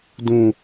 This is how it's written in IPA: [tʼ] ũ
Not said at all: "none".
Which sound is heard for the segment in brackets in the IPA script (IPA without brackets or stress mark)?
d